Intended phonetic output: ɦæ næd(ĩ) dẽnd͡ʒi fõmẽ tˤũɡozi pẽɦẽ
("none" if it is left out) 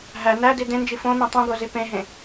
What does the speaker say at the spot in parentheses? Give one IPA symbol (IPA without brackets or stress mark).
i